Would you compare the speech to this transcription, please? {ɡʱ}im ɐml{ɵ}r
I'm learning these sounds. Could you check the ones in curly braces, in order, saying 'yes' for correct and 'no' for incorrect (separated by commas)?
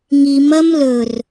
no, yes